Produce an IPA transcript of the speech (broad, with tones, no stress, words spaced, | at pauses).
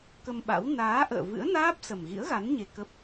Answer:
kə˧mɓa̰˧˥w naː˨˦ ʔə̰ː˧˨vɨ̰˧˥ə̯naː˦˥p̚ sə˨˩mɣḭ˧˥ə̯ɣa˨˦n ɲe˧kə˦˥p̚